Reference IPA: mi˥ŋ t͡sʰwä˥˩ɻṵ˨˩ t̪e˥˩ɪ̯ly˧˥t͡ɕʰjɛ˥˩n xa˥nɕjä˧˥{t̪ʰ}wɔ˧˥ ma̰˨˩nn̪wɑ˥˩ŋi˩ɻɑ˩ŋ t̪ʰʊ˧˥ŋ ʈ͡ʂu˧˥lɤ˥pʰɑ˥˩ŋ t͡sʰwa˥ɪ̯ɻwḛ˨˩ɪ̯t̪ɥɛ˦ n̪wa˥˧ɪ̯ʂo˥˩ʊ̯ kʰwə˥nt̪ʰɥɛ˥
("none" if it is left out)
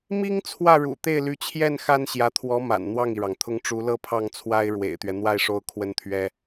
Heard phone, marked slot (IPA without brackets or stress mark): t̪ʰ